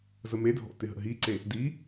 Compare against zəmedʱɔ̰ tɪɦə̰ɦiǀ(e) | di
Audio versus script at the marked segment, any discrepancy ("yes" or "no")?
no